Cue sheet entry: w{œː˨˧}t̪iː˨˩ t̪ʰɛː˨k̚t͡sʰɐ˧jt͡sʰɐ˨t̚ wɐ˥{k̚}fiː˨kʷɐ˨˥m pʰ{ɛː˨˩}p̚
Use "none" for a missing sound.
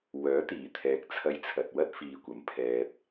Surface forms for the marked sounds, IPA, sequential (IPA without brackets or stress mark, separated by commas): œː˨˥, t̚, ɛː˨